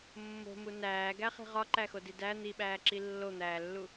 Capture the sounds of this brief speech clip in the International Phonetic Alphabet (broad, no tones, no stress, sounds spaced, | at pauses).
mː o̤ m u n æː ɡ æ χ i̤ ʁ ɒ ǃ æ x o d i d æ n̪ i ɓ æː ǁ i lː o n̪ æː lː u